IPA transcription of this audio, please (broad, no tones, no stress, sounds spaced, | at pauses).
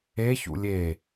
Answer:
e ç ṵ lʲ e